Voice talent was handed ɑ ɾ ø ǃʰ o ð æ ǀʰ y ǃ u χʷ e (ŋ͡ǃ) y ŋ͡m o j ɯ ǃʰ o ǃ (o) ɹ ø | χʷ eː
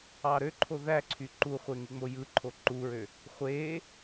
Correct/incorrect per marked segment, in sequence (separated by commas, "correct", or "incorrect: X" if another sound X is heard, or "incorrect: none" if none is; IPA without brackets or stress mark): incorrect: ŋ, incorrect: u